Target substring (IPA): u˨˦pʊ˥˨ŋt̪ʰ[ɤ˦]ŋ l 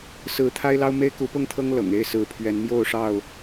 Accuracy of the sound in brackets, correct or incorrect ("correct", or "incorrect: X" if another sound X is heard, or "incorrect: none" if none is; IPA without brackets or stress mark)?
correct